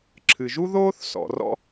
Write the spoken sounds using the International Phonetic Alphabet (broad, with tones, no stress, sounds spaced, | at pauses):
ǁʰ ɨ˩ ʒ u˥ ð oː˥ θ s ɔ̰˩ r ɔ̰˥